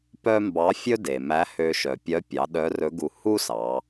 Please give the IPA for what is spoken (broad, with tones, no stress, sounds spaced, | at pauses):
p œ˥ m b ɑ˧˥ fʲ ɵ˥ d e˩ m æ˧˥ h ø˧ ʃ œ˩ pʲ œ˧˥ pʲ ɑ˩˧ ɗ œ˧˥ r ɵ˧˥ ɡ u˧ h u˥ s ɑ˩˧